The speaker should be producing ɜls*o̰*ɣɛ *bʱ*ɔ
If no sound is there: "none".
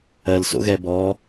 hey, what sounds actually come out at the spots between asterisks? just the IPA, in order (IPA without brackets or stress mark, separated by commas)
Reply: o̰, b